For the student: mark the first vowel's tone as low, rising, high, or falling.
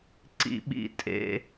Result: high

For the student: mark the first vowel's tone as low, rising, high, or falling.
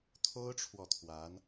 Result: high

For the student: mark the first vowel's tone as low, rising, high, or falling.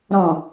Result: low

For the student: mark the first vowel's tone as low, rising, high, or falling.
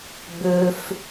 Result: high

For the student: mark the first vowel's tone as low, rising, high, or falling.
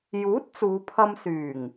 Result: rising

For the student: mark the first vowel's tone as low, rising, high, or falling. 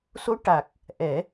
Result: rising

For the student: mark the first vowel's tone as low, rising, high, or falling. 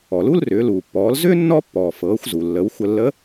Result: low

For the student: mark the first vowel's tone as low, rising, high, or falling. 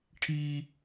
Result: high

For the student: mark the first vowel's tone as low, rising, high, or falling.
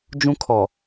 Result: high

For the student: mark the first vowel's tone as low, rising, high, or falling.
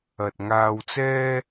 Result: low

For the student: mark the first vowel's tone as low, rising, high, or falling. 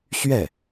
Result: falling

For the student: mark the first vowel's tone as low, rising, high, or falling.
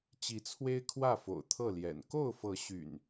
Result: rising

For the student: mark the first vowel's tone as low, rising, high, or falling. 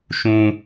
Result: high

